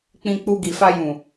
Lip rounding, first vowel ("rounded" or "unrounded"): unrounded